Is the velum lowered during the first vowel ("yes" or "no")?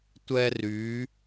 no